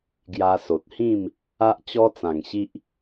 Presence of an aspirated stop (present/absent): absent